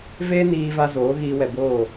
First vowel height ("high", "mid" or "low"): mid